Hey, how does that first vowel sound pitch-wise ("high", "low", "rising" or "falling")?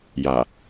low